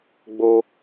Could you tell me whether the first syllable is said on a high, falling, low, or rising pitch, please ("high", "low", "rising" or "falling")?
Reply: high